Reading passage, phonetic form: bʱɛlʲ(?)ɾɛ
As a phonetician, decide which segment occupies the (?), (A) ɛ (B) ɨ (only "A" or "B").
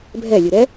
B